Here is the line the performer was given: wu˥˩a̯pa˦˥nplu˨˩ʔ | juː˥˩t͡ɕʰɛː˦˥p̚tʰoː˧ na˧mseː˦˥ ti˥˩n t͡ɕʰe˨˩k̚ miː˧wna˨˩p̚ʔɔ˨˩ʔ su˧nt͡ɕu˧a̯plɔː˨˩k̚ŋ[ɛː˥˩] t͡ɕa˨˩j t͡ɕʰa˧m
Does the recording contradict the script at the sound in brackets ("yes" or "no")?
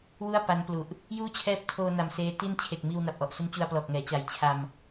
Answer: yes